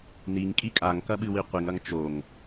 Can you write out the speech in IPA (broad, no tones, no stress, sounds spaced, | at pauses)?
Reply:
n i ŋ kʼ i kʼ a ŋ k ɐ ɓ ɨ w i qʷ i ŋ ɐ ŋ t͡ʃ o ŋ